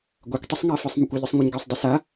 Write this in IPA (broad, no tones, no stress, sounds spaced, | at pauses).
ɡʷ ɛ kʷ tˤ ɘ sˤ ŋ a f ɨ sˤ m ɨ kʷ ɘ ʎ ɨ sˤ ŋʷ ɐ ɲ ɡ e sˤ dˤ e s a